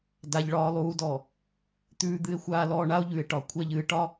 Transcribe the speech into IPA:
d a˨ ʎ ɭ ɒː˨ lˠ uː˨ d ɔ˨ | t̪ ʉː˨ d̪ ɨ˨ e̯ xʷ aː˨ l ɔː˨ ɳ a˦ o̯ ʎ ʉ˨ e̯ ʈ ɒ˨ kʷʰ ɛ˨ ʎ ɨː˨ ʈ ɒ˦

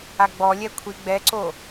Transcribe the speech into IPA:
a ɡ͡b ɔ lʲ ɛ kʷʰ i ɡ͡b ɛ ǀ o

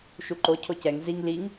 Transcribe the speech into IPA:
ʃ u ǃ o cʰ o c ɛ ŋ z i ŋ l i ŋ

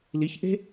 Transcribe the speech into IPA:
l i ç ʔ e̤

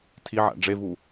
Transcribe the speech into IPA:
tʰ i ʕ æ̰ ɖ͡ʐ e v u

